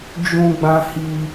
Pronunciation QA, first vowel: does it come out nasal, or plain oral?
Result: nasal